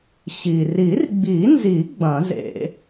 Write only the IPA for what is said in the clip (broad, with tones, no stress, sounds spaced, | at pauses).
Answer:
ɕ i˩ r i˨˩˦ r ɡ͡b i˨˩˦ n z i˨˩˦ ɡ͡b ɐ̃˨˩˦ z ḛ˨˩˦